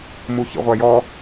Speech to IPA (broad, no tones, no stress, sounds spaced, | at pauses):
m u ç ḭ ʁʷ æ j ɔ